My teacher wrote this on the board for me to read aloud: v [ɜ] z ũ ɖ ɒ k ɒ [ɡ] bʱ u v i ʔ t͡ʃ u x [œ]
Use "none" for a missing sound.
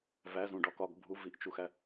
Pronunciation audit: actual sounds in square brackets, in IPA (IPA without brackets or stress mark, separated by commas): æ, ɡ, æ